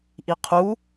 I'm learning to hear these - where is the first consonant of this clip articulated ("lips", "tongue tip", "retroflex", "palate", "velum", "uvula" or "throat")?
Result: throat